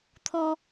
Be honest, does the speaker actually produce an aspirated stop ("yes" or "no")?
yes